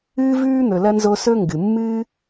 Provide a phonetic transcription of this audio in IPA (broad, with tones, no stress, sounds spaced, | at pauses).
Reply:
ɨː˥ v ʉː˥ n̪ ɵ˨ l ɐ˥ n z o˦ s ɵ˥ ŋ ɡ ɨ˩ mː ɨː˥